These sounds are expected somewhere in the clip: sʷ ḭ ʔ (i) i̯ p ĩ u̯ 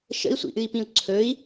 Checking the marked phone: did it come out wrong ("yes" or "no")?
yes